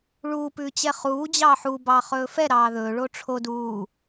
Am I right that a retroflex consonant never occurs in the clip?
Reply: no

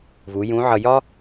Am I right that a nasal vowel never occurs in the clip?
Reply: no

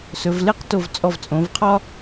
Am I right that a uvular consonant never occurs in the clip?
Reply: no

